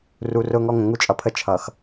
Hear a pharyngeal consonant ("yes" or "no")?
no